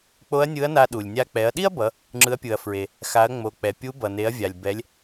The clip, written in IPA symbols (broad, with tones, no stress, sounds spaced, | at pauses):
k͡p o˧˥ ɐ̯ nʲ ɯ˧˥ ɐ̯ n a˧ ɗ u˩ lʲ nʲ a˧ k͡p ɛ˩˧ ɐ̯ ɗ i˥ ɐ̯ b ʌ˩˧ | ŋ͡ǁ ɯ˩˧ ɐ̯ pʲ ɯ˩ ɐ̯ f ɹ e˩ | x a˩˧ ɐ̯ ŋ͡m o˩ k͡p ɛ˩ pʲ u˧˥ b ʌ˩ n e˩˧ ɐ̯ vʲ a˩ lʲ b ɛ˩˧ lʲ